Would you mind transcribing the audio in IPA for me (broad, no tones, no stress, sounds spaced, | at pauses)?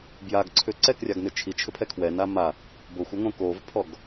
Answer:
b j a ɡ ǀʰ ʏ ǀ ɛ k rʲ a ɡ n ʏ t͡ʃʰ i t͡ʃʰ ʏ pʰ ɛ kʰ w ɛ n a m a | b o xʷ o ŋ õ k o v pʰ ɔ ɡ